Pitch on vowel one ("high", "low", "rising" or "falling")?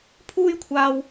high